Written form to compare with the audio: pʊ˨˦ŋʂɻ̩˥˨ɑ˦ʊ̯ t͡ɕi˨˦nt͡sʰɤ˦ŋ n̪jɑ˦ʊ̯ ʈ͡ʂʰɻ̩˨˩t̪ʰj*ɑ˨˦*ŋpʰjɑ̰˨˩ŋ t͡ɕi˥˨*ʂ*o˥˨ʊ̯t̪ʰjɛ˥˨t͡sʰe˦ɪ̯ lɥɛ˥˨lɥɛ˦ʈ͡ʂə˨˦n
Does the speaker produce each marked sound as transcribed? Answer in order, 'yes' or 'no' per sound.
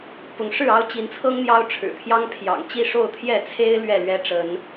no, yes

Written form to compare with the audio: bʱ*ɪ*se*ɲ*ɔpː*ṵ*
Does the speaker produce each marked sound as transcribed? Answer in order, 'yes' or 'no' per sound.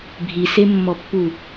no, no, no

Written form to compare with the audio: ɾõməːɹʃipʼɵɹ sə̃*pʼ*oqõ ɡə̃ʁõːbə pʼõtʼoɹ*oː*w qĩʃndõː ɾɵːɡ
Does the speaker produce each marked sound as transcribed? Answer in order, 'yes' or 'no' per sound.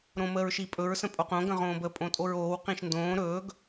yes, yes

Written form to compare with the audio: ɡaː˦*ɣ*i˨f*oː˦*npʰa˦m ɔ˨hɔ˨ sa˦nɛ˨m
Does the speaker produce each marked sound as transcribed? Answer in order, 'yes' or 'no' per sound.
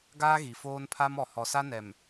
yes, yes

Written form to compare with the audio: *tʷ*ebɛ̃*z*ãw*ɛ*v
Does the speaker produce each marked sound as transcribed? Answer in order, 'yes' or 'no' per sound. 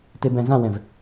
no, yes, no

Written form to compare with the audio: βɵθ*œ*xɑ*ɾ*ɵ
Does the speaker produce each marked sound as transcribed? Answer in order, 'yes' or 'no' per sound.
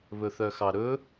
yes, yes

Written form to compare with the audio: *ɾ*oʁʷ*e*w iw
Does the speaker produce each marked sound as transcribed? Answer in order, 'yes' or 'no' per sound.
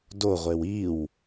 no, yes

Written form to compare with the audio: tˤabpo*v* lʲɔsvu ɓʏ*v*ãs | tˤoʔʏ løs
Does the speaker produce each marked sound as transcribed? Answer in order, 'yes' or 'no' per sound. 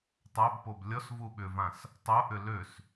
no, yes

